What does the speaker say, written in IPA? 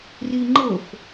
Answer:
riŋ͡ǃɤf

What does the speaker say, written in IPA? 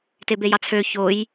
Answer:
tebejɑt͡sʰø çoj

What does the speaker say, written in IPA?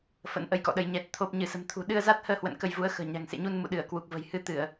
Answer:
fə̰˧˥nʔə˧jkɔ̰˧˨ɗə˨˦j ɲɛ˨˩t̚ t̪ʰo˨˩p̚ ɲɨ˧˩sə̤˨˩mt̪ʰṳ˨˩ ɗɨ˧ə̯za˦˥t̚həː˧hwə̰˧˨n kə˧jvu˨˦ə̯ xə̤ː˨˩ɲa̤˨˩ŋsḛ˧˨ɲu˧n mṵ˧˨ɗɨ˧˩ə̯ kwu˨˩k̚və̤˨˩j hɨ˨˦t̪ɨ˧˩˨ə̯

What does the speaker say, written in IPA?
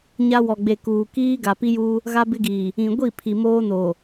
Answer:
ɲa˦wɔ˨ɡ͡be˨ kuː˨kiː˦ ɡa˨pi˦juː˦ | ɣa˦bɪ˦ɡiː˨ | ĩ˨ɡʷi˦˨ pʰi˨moː˦noː˨

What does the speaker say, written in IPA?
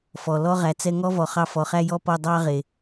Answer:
fɔ˨ lɔ˦ʁæ˨ t͡sɛ˦ ŋɔ˦vɔ˨χɑ˧ fɔ˨χæ˦jɔ˦ pɔ˧ dˤɑ˦ ʁe˨

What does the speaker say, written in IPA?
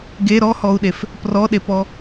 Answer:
ɡe ɾɔhɔu̯ɗef | prɔɗepɔ

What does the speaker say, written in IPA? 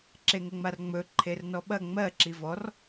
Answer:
ǁeŋəŋ͡marŋ͡mɵ ǃʰernɔɓɐ ŋ͡mɜ ǁivɔr

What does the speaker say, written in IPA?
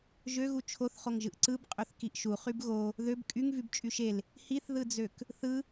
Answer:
ʒøɣu t͡ʃʰoθχoŋʒɯʔ ǀɯb qʼøθkiʔʃu χybɣo | ðøb kʼyŋ vybt͡ʃʼyʃel | hiθðɯd͡zøk | θɯ

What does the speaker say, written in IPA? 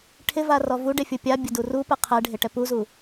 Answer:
ʈʰɪva rɔvuɖe fʲʊpʲabʲʊ durupɛ qʰɛɖʱɪ ʈɛpuzu

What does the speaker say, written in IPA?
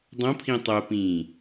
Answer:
dˤõpʰĩ tˤopĩː

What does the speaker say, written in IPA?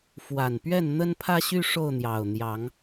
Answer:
fwa˨˩npɥɛ˥˨n n̪ə˦npʰä˦ɕy˦ ʂo˥˨ʊ̯n̪jɑ˨˩ʊ̯n̪jɑ˨˦ŋ

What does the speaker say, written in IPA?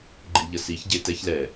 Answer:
ɡ͡ǃiʎəsiç ɟetɛç lɛ

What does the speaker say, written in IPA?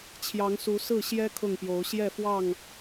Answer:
t͡ɕʰjɑ˨˦ŋsu˨˦ sɹ̩˥˨ɕjɛ˦ kʰʊ˥˨ŋpjo˨˦ʊ̯ ɕjɛ˥˨fwɑ˥˨ŋ

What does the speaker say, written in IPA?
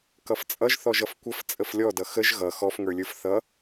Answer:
kʌft͡sʼʌʒθɔʒ ʌfkʷəf t͡sʼəflʲɔdʌ xəʒ ɣʌ xɔfŋə˞lʲə˞f θʌ

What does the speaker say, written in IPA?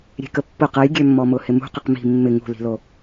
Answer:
ɾʲe̤kəpːʊ qɐjɡʲømːɔmʊ hɪmṳqɪq mi̤ mːɪ ŋṳli̤lo

